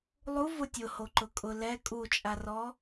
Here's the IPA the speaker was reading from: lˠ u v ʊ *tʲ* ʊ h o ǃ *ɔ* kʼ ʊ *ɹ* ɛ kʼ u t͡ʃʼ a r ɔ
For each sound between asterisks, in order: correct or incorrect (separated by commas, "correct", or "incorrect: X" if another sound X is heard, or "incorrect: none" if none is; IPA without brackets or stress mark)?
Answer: correct, incorrect: ʊ, incorrect: l